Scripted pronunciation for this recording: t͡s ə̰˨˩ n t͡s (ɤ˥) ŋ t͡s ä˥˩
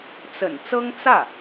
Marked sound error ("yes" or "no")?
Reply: no